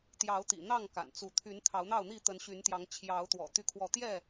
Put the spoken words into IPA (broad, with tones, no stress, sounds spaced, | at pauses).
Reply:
t̪ j ɑ˨˦ ʊ̯ t̪ ḭ˨˩ n̪ ɑ˥˨ ŋ k a̰˨˩ n t͡s u˨˦ t̪ʰ y˨˦ n t̪ʰ ɑ˨˦ ʊ̯ n̪ ɑ˥˨ ʊ̯ n̪ i˥˨ t̪ ə˨˦ n ɕ y˨˦ n t̪ j ɑ˨˦ ŋ t͡ɕʰ j ɑ˨˦ ʊ̯ t̪ w ɔ̰˨˩ t̪ y˥˨ kʰ w ɔ˥˨ t̪ j ɛ˥˨